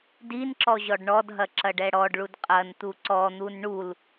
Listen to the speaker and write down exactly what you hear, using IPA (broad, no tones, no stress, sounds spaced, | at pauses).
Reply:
d i n ǁ ɔ ʑ ɔ ɖ ɳ ɔ d ɦ ɐ ǁ ɐ ɖ ɛ ɽ ɔ ɖ ɭ u d qʼ ɐ n t̪ u ǀ ɔ n̪ u n ɳ u l